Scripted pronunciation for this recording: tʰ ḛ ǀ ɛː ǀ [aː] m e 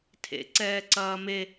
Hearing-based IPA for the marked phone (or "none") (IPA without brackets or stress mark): ɐː